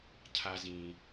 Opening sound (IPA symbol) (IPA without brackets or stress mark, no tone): cʰ